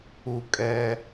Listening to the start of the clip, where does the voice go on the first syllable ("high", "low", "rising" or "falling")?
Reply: low